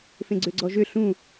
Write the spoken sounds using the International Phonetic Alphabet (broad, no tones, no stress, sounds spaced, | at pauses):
f ẽ ɡ͡ǀ ø ɡ͡ǀ ɔ ʒ ø ɬ ũ